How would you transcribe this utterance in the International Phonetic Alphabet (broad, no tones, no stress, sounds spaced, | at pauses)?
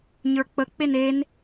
ɲ ə˞ k͡p ə k͡p e n e n